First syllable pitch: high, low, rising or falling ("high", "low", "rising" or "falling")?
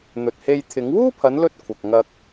low